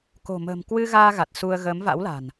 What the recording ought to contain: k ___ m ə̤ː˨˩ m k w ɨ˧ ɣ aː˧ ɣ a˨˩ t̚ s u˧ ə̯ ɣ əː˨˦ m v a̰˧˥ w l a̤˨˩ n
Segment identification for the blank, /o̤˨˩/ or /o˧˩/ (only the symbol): o̤˨˩